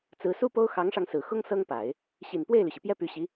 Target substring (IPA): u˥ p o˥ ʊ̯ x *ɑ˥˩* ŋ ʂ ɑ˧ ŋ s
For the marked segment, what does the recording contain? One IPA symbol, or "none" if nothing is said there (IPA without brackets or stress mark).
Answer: ɑ˧˥